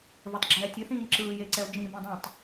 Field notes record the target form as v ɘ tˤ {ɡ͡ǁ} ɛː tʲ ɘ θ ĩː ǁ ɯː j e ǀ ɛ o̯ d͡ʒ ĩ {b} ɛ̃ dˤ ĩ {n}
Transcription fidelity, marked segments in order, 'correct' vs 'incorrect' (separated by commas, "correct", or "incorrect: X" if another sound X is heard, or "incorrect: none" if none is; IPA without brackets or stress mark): correct, correct, incorrect: tˤ